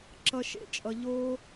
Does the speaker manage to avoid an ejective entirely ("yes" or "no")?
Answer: no